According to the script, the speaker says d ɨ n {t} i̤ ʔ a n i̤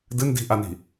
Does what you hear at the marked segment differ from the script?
yes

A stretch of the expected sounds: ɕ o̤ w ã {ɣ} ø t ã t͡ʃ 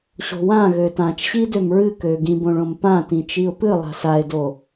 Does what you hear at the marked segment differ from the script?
no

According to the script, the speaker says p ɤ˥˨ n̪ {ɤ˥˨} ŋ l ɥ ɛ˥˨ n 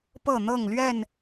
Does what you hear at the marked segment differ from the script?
no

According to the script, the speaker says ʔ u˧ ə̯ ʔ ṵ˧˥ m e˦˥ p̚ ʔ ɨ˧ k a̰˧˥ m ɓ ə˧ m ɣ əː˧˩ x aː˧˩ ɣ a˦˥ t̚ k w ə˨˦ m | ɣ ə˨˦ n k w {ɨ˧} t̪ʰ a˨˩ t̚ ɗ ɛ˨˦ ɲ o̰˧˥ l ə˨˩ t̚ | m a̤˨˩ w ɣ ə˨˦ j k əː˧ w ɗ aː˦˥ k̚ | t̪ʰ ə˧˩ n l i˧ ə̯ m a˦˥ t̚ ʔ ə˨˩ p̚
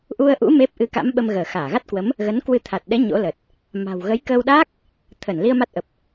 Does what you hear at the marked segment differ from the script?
no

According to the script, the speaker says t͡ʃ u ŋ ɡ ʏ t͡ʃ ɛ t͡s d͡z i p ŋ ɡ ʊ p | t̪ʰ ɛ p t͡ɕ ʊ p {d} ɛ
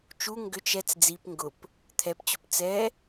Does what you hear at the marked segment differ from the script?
yes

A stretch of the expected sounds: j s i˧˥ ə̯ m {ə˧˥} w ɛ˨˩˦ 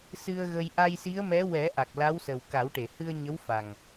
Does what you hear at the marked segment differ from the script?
yes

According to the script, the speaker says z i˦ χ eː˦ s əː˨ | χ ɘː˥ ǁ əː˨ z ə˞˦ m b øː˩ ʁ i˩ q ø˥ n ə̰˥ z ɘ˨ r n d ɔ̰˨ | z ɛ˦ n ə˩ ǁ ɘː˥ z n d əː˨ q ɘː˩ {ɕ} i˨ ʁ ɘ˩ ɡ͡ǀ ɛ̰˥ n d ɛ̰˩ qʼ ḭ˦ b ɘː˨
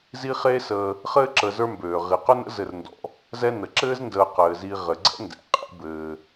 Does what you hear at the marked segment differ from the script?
yes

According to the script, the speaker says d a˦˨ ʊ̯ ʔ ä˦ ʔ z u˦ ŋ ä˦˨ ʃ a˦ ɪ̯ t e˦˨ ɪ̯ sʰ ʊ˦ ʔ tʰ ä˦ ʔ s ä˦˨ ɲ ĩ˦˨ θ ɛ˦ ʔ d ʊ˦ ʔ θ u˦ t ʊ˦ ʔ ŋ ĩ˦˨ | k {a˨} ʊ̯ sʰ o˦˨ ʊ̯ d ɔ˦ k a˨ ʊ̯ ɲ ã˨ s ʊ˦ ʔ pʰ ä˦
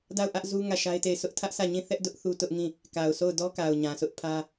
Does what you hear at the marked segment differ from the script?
no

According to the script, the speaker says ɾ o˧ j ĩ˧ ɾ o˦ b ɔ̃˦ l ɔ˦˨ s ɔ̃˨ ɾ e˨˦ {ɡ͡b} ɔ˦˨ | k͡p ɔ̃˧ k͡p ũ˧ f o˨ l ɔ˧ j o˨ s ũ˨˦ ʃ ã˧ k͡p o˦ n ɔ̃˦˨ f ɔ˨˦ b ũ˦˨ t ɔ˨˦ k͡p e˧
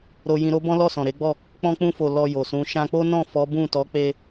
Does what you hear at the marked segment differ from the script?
no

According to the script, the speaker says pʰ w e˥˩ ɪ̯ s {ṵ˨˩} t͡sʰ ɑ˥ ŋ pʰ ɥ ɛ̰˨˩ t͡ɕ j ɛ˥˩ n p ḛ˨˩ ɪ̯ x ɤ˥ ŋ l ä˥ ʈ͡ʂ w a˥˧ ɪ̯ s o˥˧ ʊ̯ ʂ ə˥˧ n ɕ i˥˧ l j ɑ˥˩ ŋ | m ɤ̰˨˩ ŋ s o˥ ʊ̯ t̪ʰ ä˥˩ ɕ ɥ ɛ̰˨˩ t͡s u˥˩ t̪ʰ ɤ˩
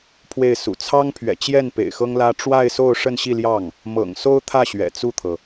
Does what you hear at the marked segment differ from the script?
no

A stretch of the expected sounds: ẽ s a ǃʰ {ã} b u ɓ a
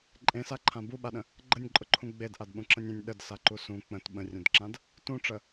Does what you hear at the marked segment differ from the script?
no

